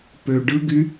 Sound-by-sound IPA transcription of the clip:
pø ɖɯɡy

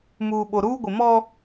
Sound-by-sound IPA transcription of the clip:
muː˨ɓo˨ɾuː˦ɡʷɪ˨ mɔ˦

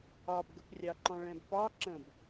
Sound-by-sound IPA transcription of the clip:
ɑbɡəprʲɑǃɔ̃ ɭɛ̃bpɑ ǁə̃b

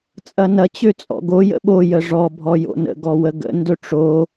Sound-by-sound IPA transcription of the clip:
t͡sʼɐnɐ t͡ɕøt͡sʼɔ̰ɡo jə̰ɓo jəʐɔ bʱɔjo̰nə̰ ɡɔwəɡə̰ ndɵʈ͡ʂo

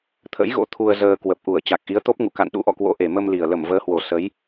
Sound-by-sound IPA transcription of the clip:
t̪ʰə̰˧˥jɣo̰˧˥ t̪ʰu˧ə̯zəː˧ kwə˨˩p̚ʔu˧˩ə̯ t͡ɕa˨˩k̚ʔi˨˦ə̯t̪o˦˥p̚ŋṵ˧˨ ka̰˧˨nɗṵ˧˥ʔɔ̰˧˨kwo̰˧˥ ʔe˨˩mə˧mli˨˩ə̯lə˧˩m vəː˨˦hwo˨˩ sə˨˦j

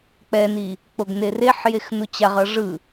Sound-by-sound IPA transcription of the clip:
k͡pɛni | k͡poɡnereħjex nut͡ɕaʁʌ ʐɯ

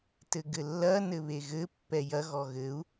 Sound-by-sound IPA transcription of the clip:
tɘɡɘlːɐ nɘβeɣɘ pːɛjɐ ɣɔɣɘu̯

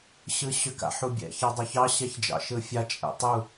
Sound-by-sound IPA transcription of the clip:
ɕɯɕʏk a̰ħubʲɛ̰ çɑdˤʊçɑ ɕɛçd͡ʒɑ̰ʃɯfʲa t͡ʃʼɛ̰tˤu

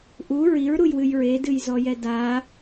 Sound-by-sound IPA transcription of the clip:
ʔu ɹiɹɾujwɨj ɹedɨjzɔjɛ da

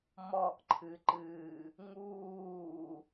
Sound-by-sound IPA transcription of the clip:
mɔʔǃʰɨǃɨː | ŋuː

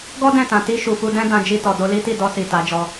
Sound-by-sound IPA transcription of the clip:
ɡɔ˦ dɛ̃˦˨tã˨ ti˧ ʃu˨fu˧dɛ̃˦ dã˧d͡ʒi˧tɔ˨ do˧li˦ ti˦˨dɔ˧ si˨ta˨˦d͡ʒɔ˧

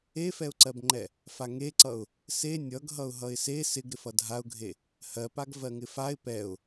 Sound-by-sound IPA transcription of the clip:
efɛʊ̯ǀɜbŋ͡ǃɛ | faŋeǀʌʊ̯ | se nʲʌɡɦʌʊ̯ ɦʌɪ̯se sɪɡ ɾɪfʌdʱaʊ̯ɡʱe | hɜpaɡ vɜŋɪfaɪ̯ pɛʊ̯

